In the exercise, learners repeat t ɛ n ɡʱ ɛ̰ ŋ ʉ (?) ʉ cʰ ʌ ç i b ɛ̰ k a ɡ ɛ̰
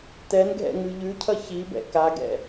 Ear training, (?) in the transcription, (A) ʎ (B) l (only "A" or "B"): A